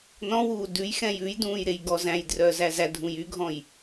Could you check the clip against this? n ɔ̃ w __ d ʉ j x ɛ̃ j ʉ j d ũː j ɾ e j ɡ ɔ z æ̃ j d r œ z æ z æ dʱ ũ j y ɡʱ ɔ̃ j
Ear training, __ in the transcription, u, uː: uː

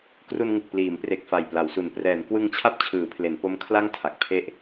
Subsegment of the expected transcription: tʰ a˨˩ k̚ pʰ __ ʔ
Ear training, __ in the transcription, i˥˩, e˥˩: e˥˩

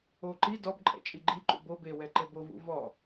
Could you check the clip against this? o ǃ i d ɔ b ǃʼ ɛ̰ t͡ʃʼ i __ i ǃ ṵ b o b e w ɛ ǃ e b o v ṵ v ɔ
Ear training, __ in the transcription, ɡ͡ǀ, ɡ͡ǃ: ɡ͡ǃ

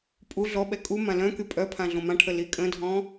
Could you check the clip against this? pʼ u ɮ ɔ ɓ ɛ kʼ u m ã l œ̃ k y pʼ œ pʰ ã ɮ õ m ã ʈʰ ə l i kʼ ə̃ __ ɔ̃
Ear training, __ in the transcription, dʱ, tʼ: dʱ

